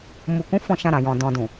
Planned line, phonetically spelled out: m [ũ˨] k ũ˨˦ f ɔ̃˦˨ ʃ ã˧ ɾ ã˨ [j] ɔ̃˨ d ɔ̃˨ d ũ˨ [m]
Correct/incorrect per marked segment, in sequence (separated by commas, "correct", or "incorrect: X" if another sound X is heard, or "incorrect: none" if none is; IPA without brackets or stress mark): incorrect: u˨, correct, incorrect: none